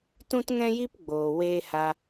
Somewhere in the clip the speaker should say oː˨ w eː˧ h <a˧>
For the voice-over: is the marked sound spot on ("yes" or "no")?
yes